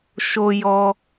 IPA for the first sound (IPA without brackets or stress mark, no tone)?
ʃ